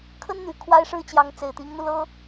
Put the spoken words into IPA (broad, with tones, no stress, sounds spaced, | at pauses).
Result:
kʰ ə˥ n n̪ y˨˩ kʰ w a˥ ɪ̯ ʂ ɻ̩˥ t͡ɕ j ɑ˧˥ ŋ t͡s e˨˩ ɪ̯ t̪ i˧˥ ŋ n̪ u˧ l ɤ˥